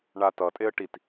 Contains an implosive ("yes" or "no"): no